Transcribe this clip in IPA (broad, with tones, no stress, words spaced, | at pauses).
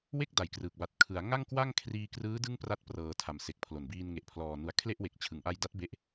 we˥˩k̚da˨˩jkrɯː˨˩k̚ ba˨˩t̚kʰɯ˩˦a̯ ŋa˥˩ŋkwa˥˩ŋkʰriː˧ krɯː˦˥ dɯ˥˩ŋpra˦˥t̚prɤː˨˩ tʰa˨˩mse˨˩k̚pʰlo˨˩nbiː˧n ŋe˨˩ʔpʰlɔː˨˩nu˨˩a̯ kʰle˥˩ʔwe˨˩k̚ t͡ɕʰɯ˩˦ŋʔa˧jda˦˥t̚ be˦˥ʔ